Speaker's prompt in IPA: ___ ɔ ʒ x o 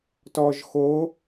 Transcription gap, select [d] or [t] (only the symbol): t